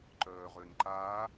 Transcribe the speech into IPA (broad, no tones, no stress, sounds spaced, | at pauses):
ǃ œː ʁ ø n ǃ aː